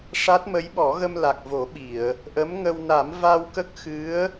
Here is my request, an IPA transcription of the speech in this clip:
ʂ a˦˥ t̚ m ə˧˥ j ɓ ɔ˨˩˦ ɣ ə˧ m l a˨˩ k̚ v o˨˩˦ ɓ i˨˩˨ ə̯ | ʔ ə˧˥ m ŋ ə˧ w n a˨˩˦ m v a˧ w k ə˦˥ k̚ x ɨ˧˥ ə̯

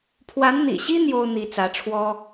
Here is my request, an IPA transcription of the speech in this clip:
pʰ w a˧˥ n n̪ ḭ˨˩ ɕ i˥ n̪ j o˥ ʊ̯ n̪ i˧˥ t͡s ä˧˥ ʈ͡ʂʰ w ɔ˥

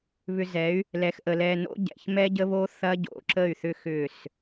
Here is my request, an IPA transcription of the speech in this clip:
β ʏ˨ z ɛ˨˦ y̯ | l ɛ˨ x ʔ ə˨ l ɛ˨ n o̰˦ ɟ ɛ̰˨ ç m ɛ˦ ɟ ə˦ β o˦ θ ɐ˦ ɟ o̰˨ ǁ ə˦˨ y̯ θ ʏ˦ x ʏ˦˨ s

